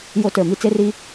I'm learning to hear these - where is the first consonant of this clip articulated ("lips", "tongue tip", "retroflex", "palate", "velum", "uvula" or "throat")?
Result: palate